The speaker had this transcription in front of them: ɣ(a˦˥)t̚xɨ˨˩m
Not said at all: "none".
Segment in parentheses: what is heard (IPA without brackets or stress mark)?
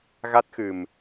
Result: a˦˥